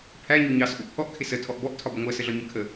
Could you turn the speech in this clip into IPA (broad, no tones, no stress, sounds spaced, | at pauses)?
pʰ æ ɲ u ɲ ɑ s ʔ u ʔ pʰ ɔ ʔ kʰ ɪ s ə tʰ ɔ ʔ b ɔ ʔ tʰ ɒ b ə ŋʷ ɜ s ə ɮ ɒ ɲ ɜ kʰ ə